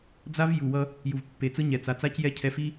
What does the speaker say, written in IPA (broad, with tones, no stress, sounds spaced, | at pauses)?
d͡z a˦ v j u˨ w ʌ˦ | j u˨ v pː e˨ t͡s ɯ˦ ɲ ɛ˨ t͡s a˨ t͡s a˦ c j ɛ˦ cʰ ɛ˨ f i˦